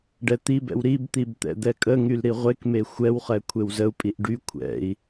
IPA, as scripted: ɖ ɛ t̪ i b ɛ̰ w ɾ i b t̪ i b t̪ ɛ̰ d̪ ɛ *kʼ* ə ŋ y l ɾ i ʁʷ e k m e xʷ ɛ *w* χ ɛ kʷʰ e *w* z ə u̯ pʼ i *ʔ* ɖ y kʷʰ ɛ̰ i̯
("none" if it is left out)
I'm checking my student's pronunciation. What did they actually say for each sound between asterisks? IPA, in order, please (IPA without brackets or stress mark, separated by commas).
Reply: kʼ, w, w, ʔ